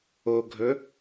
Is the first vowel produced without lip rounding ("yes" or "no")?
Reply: no